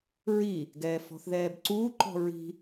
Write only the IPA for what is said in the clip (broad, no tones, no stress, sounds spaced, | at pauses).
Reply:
ɹ i | ɡ ɛː f ɔ̤ θ ð ɛː b ǀ uː ǃ ɔ̤ ɹ i̤